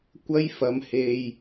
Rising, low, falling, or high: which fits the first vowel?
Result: high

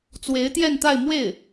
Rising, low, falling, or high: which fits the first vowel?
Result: rising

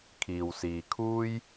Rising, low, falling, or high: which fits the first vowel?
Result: low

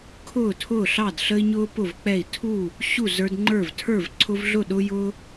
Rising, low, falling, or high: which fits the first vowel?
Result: falling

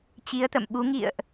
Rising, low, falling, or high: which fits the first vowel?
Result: rising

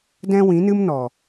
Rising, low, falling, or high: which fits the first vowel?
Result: high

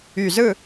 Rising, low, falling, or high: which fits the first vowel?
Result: low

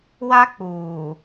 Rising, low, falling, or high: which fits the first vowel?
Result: high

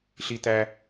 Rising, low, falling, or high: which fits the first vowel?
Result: high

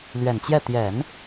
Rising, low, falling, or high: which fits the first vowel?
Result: low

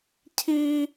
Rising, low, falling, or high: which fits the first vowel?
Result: high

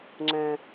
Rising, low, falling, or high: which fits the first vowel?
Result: low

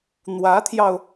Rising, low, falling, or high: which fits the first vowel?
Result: rising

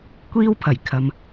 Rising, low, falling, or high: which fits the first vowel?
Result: high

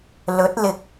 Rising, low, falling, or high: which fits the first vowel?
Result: rising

